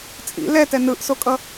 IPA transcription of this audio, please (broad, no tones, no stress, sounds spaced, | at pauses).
t͡sʼ ḭ l ɛ t ɛ n ɯ ʔ s o kʼ ʌ